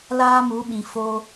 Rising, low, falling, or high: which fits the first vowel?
high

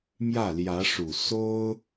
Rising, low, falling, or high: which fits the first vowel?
falling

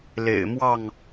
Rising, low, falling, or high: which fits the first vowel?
low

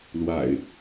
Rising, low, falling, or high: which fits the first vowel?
low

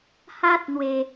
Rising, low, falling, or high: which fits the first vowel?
high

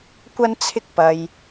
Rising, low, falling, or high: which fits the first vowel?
high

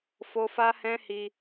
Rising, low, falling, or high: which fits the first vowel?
high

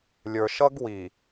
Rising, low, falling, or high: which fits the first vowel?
low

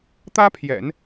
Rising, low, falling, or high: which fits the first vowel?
high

